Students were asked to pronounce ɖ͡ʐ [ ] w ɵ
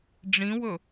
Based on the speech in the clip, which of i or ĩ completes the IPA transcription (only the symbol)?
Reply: ĩ